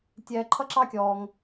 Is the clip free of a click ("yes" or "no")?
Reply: no